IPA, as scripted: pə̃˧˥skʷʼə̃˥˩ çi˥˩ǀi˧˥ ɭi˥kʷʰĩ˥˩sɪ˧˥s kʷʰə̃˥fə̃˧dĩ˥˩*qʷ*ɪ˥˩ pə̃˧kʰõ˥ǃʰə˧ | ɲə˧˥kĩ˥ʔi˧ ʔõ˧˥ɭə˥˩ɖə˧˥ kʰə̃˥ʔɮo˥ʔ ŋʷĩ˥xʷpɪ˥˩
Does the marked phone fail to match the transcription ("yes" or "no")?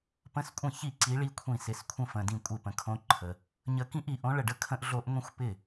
yes